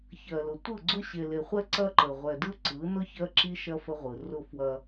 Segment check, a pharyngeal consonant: absent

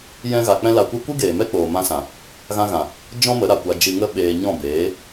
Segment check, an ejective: absent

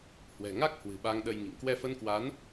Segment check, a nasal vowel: absent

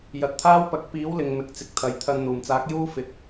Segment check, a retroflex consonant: absent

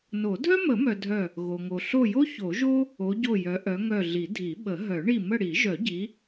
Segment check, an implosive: present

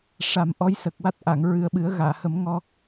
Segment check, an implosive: present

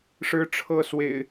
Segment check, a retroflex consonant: present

